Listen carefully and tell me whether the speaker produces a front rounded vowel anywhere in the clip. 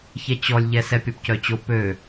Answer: yes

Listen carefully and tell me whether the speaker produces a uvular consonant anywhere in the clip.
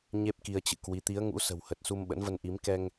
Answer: no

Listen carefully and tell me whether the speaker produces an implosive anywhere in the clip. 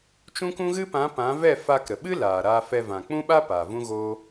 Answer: yes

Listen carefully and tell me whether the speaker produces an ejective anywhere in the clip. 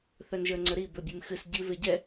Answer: no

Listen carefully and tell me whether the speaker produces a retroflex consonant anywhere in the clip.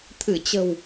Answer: no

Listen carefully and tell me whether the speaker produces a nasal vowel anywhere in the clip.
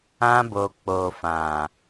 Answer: yes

